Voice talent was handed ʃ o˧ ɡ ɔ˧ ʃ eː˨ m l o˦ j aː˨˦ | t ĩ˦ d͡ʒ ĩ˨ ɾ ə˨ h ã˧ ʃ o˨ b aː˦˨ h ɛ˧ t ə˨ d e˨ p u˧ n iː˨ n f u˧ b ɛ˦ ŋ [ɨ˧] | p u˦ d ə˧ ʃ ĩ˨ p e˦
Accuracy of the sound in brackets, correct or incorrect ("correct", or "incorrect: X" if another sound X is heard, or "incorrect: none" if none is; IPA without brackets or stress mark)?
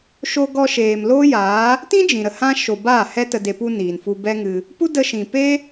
correct